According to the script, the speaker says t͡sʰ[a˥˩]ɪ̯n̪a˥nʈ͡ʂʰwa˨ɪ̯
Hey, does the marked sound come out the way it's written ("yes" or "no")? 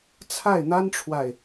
yes